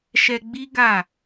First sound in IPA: ʃ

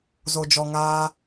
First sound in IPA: z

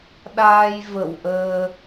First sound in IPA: ɗ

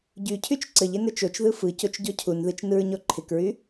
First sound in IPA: ɟ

